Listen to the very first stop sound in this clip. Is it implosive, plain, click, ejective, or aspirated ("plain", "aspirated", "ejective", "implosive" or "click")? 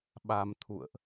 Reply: implosive